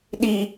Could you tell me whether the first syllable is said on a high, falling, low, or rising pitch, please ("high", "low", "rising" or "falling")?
high